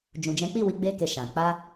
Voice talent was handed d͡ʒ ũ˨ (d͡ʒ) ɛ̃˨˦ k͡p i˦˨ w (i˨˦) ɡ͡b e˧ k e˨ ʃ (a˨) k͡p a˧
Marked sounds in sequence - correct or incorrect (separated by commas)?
correct, correct, incorrect